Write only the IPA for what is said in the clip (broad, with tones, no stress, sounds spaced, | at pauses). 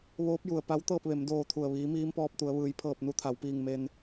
ʋ oː˧˥ p̚ j u˩ ə̯ p a˧˥ w t̪ ɤː˥˨ p̚ ʋ e˩˧ m d oː˧˩ t̪ʰ u˩ ə̯ ʋ iː˩˧ m iː˧˥ m p ɔː˧ p̚ t̪ u˩˧ ə̯ ʋ ɯː˩˧ j pʰ ɤː˧˩ p̚ n u˧ t̪ʰ a˩˧ w p iː˧˩ ŋ m e˧ n